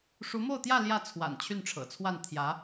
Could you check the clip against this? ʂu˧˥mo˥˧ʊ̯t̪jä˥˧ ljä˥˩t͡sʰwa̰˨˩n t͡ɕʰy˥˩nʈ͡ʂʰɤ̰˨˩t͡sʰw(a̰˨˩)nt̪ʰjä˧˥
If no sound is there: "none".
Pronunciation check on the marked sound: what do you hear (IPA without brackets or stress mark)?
a˥˩